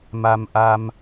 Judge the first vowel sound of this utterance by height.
low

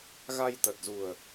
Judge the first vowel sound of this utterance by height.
low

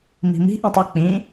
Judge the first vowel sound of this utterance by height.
high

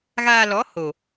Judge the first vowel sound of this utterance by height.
low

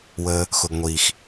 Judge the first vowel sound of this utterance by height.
mid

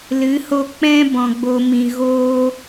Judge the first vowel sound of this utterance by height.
high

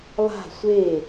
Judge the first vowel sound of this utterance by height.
low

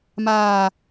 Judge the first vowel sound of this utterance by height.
low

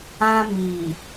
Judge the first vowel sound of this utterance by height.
low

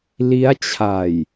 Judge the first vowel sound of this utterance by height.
high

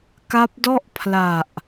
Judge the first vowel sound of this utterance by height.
low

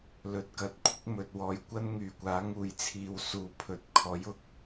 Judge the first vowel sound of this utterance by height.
mid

